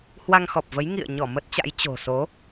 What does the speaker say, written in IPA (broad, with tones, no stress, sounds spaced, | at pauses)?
h w a˧ ŋ x ɔ˨˩ p̚ v ə˨˦ j ŋ ḭ˧˨ ə̯ ɲ ɔ˧˩ m ə˦˥ t̚ t͡ɕ a̰˧˥ j t͡ɕ o̤˨˩ s o˨˦